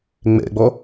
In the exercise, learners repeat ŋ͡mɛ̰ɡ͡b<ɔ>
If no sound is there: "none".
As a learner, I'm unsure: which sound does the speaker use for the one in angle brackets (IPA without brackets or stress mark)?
ɔ